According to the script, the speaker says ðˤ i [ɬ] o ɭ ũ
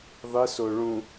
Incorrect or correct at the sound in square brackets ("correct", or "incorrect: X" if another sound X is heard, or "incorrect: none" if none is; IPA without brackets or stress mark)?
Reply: incorrect: s